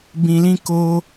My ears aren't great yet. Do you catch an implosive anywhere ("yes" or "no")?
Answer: no